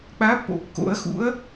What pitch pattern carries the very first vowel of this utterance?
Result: rising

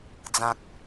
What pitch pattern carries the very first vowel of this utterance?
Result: low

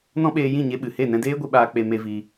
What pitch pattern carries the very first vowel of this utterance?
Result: high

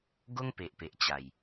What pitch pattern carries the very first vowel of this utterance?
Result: high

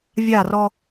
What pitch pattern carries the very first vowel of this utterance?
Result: falling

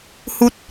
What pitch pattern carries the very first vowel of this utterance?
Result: high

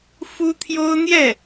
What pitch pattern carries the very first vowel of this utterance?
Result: high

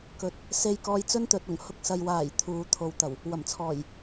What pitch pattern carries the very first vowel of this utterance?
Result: rising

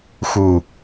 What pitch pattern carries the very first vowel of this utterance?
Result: low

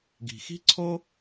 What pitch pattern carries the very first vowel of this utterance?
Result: low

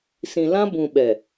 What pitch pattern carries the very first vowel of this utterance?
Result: low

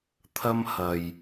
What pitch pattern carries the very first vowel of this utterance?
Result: high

